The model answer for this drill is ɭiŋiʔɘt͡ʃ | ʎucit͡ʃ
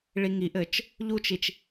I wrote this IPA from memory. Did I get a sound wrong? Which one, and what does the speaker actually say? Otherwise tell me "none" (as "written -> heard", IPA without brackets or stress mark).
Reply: c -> t͡ʃ